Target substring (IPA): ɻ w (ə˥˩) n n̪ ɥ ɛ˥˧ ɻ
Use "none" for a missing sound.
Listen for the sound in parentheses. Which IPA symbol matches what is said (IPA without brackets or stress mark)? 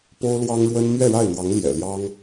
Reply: ə˥